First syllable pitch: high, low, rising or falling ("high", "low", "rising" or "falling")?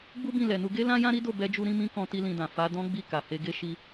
high